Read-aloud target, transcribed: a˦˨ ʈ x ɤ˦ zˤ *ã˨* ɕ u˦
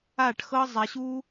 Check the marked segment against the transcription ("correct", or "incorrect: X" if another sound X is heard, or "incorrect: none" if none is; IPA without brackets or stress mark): incorrect: a˨